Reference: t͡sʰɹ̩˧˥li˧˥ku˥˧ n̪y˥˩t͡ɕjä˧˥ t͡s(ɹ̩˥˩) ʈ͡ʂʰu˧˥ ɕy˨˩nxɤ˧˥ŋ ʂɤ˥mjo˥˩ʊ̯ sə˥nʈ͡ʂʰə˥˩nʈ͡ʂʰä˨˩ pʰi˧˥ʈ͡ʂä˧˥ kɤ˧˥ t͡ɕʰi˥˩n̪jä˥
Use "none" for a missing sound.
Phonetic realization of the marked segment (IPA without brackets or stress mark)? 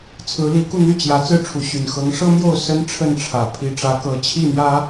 ɹ̩˥˩